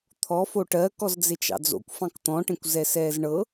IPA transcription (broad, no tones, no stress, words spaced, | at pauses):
t̪ʰɔfo ʈɜkɔz d͡zet͡ʃɑ̰d͡zo̰kʷ fɑ̃kt̪ɔ̃ʈẽkʷ zɛsɛːzɳɤ